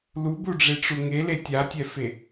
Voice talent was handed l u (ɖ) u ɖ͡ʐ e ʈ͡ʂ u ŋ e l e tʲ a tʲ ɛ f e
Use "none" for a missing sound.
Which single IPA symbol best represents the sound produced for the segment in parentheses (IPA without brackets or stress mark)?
b